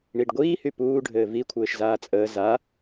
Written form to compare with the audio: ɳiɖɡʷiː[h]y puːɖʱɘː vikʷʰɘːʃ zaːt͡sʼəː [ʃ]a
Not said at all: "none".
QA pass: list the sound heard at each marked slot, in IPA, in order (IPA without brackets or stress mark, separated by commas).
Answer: h, z